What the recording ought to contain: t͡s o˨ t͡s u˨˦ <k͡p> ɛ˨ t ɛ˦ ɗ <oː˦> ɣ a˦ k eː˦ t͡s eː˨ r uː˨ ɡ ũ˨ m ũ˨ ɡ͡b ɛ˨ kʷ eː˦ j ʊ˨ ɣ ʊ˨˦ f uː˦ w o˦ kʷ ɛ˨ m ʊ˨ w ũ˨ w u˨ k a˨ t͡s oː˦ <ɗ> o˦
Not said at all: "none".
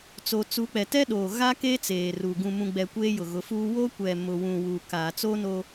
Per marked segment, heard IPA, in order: k͡p, oː˨, n

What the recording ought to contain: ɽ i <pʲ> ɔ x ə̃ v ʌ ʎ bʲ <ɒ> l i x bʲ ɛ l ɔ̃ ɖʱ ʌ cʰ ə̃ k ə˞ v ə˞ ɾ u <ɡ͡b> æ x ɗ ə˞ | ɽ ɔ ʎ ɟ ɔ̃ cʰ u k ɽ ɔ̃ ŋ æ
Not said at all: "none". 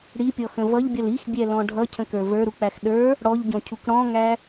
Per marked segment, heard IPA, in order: pʲ, ʌ, k͡p

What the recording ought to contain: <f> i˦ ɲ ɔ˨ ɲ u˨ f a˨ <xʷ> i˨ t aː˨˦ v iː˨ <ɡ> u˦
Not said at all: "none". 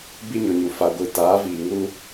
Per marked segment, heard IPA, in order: b, ɡʷ, ŋ

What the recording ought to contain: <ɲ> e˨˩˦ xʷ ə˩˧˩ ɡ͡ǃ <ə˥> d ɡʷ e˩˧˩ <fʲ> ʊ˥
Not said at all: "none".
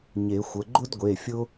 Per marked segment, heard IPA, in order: ɲ, ʊ˥, fʲ

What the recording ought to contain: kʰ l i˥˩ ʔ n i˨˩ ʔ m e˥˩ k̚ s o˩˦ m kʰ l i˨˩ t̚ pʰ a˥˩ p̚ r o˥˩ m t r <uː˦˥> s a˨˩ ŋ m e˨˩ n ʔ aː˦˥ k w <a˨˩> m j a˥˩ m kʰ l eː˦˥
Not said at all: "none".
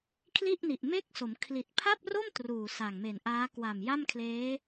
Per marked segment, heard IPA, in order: uː˨˩, a˨˩

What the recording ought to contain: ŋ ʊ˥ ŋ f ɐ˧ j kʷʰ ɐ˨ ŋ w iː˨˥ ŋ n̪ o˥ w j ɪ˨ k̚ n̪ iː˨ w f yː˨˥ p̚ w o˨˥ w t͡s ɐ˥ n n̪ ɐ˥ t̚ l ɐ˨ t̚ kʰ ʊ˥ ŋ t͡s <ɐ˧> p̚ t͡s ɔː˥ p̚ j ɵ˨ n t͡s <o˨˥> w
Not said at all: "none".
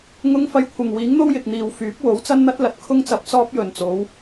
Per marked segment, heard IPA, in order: ɐ˧, o˨˥

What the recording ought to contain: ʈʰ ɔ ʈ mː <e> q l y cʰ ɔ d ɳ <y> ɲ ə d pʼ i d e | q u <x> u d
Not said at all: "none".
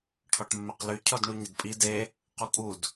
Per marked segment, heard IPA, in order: e, u, kʼ

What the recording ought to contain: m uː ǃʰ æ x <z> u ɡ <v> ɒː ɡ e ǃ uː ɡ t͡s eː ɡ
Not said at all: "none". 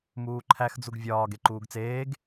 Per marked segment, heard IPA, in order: d͡z, vʲ

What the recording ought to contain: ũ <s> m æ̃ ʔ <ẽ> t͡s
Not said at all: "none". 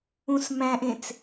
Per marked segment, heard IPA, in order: s, ẽ

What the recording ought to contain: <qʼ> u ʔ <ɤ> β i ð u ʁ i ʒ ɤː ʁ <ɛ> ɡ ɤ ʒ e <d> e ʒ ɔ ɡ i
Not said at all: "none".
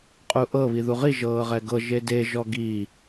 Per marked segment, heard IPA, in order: qʼ, ɤ, ɛ, d

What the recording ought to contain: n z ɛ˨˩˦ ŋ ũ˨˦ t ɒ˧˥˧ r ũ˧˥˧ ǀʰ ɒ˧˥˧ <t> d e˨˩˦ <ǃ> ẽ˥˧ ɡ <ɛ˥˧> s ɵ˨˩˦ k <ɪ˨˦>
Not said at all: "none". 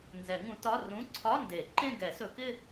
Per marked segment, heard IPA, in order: n, ǃ, ɛ˨˩˦, ɪ˥˧

